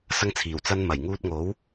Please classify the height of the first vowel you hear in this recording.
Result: low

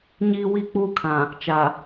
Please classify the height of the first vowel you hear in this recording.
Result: high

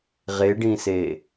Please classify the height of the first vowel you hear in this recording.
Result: mid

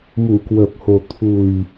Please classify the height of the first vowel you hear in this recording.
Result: high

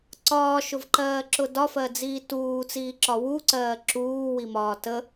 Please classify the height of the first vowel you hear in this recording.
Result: low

